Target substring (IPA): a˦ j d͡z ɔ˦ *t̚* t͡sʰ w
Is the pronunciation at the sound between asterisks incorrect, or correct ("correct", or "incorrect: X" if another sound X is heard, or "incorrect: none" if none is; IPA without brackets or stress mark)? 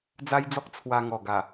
incorrect: k̚